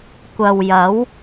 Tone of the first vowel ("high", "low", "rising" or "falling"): low